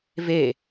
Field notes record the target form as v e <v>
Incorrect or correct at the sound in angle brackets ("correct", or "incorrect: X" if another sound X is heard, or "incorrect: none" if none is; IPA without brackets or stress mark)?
incorrect: none